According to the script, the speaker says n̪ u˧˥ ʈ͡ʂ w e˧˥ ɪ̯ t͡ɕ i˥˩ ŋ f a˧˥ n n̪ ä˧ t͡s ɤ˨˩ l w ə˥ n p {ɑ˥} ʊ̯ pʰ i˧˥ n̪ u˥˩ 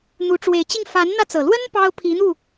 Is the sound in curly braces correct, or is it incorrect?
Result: correct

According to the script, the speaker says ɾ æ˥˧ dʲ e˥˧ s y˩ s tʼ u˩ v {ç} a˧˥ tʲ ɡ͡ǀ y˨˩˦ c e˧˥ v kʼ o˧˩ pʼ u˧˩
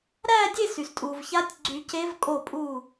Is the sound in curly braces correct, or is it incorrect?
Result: correct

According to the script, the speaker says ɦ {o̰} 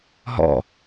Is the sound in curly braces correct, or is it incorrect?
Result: incorrect: ɔ̰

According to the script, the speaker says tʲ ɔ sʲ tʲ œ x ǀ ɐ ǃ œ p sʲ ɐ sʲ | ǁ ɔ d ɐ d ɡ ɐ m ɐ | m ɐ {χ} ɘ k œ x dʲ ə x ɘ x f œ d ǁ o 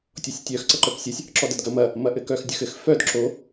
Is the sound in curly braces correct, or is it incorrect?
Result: incorrect: ʔ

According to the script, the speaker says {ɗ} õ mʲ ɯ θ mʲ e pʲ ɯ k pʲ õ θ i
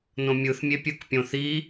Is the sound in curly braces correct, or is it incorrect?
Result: incorrect: n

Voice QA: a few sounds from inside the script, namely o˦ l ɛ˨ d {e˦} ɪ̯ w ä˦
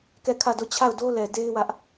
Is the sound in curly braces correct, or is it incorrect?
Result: correct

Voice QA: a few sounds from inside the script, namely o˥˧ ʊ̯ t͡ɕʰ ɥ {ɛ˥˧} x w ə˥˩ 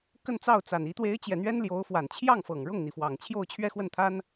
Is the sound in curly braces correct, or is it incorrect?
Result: correct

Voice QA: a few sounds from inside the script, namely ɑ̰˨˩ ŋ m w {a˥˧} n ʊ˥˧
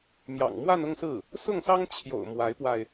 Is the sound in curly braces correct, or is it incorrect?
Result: correct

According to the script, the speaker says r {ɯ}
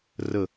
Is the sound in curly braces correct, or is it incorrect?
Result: incorrect: ə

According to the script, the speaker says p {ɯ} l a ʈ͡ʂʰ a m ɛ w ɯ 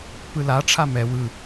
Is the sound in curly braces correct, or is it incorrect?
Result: correct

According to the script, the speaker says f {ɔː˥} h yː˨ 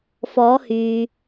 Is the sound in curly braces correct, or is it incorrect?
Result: incorrect: ɔː˨˧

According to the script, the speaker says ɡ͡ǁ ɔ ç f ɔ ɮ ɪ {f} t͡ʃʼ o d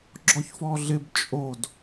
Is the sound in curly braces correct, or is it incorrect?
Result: incorrect: b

